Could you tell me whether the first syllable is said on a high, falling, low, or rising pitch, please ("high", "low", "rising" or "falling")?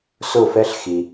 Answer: falling